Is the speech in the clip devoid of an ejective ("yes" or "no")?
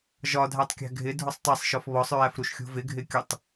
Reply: yes